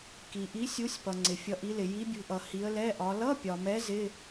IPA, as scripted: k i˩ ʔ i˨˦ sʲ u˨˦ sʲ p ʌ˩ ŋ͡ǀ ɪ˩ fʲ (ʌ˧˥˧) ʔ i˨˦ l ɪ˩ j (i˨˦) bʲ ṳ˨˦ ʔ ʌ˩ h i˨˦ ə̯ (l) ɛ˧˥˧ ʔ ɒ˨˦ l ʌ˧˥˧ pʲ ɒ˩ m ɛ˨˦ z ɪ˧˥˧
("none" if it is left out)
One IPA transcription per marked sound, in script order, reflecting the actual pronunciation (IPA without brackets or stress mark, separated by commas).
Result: ʌ˨˦, i˨˦, l